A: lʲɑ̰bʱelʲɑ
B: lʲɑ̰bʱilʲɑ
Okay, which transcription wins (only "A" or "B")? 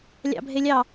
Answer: A